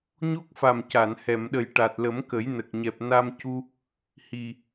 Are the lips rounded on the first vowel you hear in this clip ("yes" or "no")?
yes